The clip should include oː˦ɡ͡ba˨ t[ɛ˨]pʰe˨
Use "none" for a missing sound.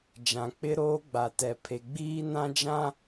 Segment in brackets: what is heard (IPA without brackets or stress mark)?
ɛ˨